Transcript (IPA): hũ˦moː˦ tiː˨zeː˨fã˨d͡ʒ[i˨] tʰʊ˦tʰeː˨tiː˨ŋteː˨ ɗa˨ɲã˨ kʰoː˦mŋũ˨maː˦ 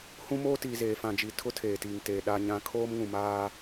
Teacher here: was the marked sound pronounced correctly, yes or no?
yes